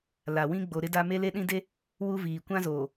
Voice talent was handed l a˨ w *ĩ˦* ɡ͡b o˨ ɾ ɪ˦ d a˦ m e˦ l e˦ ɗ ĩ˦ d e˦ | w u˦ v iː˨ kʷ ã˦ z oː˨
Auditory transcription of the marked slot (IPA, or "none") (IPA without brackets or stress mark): ĩ˦